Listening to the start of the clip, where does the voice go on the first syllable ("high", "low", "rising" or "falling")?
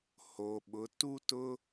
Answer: low